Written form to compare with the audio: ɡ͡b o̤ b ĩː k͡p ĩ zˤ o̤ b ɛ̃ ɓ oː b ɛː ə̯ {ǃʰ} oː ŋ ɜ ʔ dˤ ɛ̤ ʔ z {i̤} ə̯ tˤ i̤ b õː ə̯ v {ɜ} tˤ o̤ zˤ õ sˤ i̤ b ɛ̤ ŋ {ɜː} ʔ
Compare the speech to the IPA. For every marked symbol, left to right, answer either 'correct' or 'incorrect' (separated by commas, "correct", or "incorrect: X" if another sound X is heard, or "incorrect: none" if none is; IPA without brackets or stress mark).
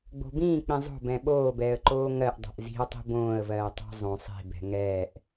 incorrect: ǃ, correct, incorrect: ɜː, incorrect: ɛː